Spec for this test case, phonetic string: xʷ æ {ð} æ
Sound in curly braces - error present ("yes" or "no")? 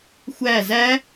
yes